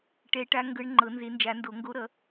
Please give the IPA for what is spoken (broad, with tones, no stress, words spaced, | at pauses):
ʈɛ˨˦ʈa˨˦ ŋɡɤ˨˦ɳ ŋ͡ǃɤ˨˩˦nze˨˩˦nd͡ʒa˨˩˦ndo˨˩˦ ŋɡo˨˦ɾʌ˨˩˦